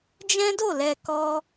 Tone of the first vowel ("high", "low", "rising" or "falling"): high